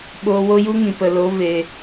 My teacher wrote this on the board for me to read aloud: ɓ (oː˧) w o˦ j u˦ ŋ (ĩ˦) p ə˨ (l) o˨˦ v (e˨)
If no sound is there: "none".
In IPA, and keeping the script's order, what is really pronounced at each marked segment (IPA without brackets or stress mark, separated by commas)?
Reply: oː˧, ĩ˨, l, e˨